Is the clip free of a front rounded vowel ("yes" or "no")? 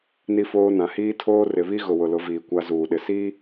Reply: yes